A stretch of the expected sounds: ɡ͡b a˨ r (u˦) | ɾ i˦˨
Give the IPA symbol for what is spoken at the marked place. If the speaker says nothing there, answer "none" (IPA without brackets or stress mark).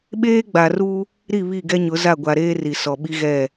u˦